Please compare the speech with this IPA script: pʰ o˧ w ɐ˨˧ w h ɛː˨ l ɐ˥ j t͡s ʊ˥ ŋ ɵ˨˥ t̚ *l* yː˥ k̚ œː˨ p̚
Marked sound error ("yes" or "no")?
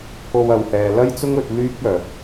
no